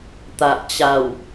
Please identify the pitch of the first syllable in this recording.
low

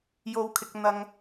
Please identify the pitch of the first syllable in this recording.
low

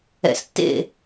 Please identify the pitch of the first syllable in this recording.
low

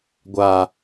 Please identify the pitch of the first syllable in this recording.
low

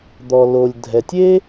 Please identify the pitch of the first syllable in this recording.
low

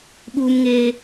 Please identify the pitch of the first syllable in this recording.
high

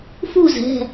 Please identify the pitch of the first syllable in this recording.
falling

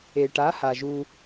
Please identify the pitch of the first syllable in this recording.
low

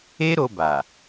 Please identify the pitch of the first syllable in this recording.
high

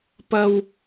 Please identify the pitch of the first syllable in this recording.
high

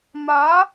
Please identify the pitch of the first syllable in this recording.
rising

